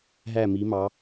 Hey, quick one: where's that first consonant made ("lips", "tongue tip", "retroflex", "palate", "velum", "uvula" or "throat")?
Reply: throat